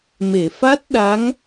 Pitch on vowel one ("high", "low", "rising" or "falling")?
low